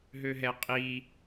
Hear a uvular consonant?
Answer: yes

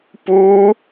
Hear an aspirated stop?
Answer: no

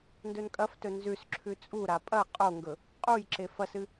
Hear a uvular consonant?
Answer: yes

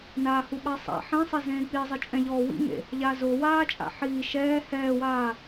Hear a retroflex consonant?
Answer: no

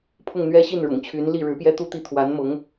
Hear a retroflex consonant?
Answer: yes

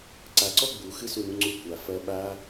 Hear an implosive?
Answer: yes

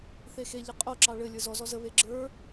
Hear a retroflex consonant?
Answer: yes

